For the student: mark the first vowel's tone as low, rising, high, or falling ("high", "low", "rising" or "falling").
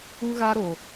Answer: high